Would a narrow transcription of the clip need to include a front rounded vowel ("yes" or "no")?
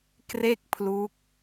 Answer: no